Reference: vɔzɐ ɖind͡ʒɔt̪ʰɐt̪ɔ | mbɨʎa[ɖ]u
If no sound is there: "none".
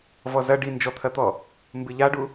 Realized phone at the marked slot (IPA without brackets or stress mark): ɖ